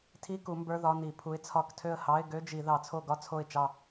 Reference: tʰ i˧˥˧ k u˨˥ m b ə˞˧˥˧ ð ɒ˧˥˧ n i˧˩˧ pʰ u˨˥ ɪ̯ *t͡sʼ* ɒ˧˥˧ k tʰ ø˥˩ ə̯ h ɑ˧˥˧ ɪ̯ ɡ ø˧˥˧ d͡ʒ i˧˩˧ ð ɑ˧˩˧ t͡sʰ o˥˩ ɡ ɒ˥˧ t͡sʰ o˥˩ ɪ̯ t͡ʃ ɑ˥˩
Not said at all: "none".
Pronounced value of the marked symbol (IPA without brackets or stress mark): t͡sʰ